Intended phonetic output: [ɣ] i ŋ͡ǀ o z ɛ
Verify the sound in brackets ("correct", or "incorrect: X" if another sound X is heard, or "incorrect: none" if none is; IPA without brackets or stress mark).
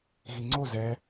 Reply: correct